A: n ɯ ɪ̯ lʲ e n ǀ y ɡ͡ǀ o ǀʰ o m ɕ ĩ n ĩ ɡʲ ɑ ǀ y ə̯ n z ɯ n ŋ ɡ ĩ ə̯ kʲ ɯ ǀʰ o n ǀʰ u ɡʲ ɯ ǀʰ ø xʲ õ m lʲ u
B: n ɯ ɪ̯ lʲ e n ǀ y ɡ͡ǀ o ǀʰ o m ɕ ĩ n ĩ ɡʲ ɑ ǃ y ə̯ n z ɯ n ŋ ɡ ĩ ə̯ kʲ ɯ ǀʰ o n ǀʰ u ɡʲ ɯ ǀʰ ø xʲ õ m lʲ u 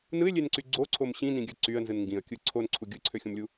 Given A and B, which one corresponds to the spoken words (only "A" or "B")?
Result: A